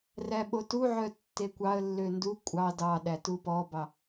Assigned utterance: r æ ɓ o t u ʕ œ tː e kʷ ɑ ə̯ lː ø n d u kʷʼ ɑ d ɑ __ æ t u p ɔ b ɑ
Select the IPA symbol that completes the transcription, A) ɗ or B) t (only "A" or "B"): A